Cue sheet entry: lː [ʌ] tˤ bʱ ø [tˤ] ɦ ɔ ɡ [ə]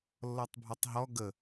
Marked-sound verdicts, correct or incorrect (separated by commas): incorrect, correct, correct